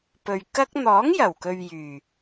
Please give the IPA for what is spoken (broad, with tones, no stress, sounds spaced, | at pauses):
p ɵ˨ ɥ k ɐ˧ k̚ n̪ ɔː˨˥ ŋ j ɐ˨˩ w k ɵ˨ ɥ j yː˨˩